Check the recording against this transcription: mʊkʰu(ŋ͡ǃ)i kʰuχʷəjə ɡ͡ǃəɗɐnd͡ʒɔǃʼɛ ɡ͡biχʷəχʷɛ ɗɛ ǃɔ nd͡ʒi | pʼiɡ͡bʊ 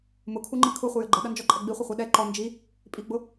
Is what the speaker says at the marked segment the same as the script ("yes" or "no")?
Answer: yes